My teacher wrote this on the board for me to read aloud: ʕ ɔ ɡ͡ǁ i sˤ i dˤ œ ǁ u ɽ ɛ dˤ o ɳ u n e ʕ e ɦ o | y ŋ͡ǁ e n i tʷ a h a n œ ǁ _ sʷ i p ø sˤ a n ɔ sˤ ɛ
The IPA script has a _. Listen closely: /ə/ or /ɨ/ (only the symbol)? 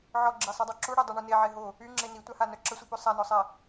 ə